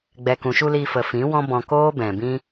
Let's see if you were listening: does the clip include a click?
no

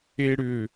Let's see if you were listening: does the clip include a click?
no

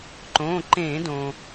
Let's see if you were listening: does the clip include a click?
yes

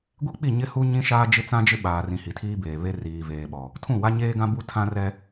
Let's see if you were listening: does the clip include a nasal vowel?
yes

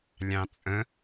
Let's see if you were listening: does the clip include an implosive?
no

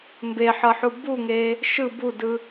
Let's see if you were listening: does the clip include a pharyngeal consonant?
yes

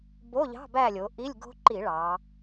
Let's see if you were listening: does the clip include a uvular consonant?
no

